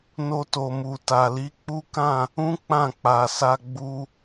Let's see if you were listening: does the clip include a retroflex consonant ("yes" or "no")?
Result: no